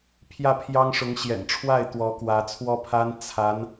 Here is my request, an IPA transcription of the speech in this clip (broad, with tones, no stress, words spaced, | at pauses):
pʰjä˥˩pʰjɑ˥ŋʂʊ˧˥ŋ ɕjɛ̰˨˩nʈ͡ʂʰwa˥˩ɪ̯ t̪wɔ˧˥kwä˧˥t͡sʰwɔ˥pʰa˥n t͡sʰa˧˥n